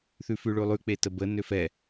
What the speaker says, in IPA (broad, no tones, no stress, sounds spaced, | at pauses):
θ ʉ f ʉ ɭ ʉ lˠ ʉ k͡p e t ə b ə n ø f ɛ